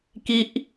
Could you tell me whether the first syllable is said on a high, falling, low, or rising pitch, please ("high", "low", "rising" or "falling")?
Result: high